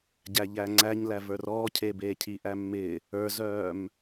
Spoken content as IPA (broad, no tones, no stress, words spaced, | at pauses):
ɟæʎæŋ͡ǀæɲ lævə˞rɔː cʰebeːcʰi ʔæmːɪ | ə˞zœːm